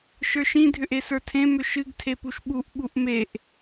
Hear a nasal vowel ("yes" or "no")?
yes